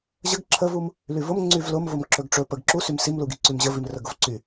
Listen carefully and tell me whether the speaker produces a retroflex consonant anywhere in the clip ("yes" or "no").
yes